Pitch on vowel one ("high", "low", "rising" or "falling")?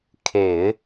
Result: low